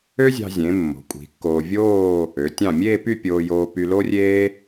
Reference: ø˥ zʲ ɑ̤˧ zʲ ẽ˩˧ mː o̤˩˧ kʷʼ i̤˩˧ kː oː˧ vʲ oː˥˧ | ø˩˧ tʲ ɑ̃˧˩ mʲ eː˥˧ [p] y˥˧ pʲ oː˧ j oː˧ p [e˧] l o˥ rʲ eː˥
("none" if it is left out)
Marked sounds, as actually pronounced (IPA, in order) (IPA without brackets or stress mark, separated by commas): p, y˧